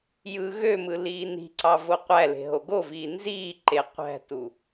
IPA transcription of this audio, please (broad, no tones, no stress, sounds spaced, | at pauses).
j ɯ ɣ ø m ɯ l iː n i̤ ǀ ɑ v o qʷ æ l e̤ ɦ o ɡ o v iː n z iː ǃ e qʷ æ̤ t u